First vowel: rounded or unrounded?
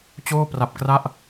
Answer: rounded